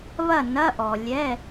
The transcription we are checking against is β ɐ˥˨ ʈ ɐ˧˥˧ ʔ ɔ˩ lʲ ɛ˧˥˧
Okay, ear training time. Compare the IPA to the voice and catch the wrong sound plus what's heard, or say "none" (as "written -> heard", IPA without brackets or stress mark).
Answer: ʈ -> n